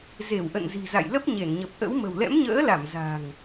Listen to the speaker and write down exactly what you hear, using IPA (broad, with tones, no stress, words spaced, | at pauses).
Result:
ze˧˩wʔə̰˧˨nzi̤˨˩za̰˧˨j lə˦˥p̚ɲe˧˩nɲə˨˩p̚ʔə̰˧˥w mə̤˨˩wlɛ̰˧˥mɲə̰ː˧˥la˧˩m za̤˨˩ŋ